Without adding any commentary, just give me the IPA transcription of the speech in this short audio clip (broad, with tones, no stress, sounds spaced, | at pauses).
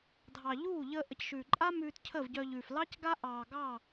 dʱ ɑ˨ ʎ uː˦˨ ʎ əː˧ ʔ ə˨ c ʃ ʉː˨ ǃʼ aː˦ m ʉː˧ t cʰ əː˦˨ v ɟ œ˧ ʎ ʉː˨ f l ɑ˦ c ɡ a˦ ʔ ɑː˨ ɡ ɑː˦˨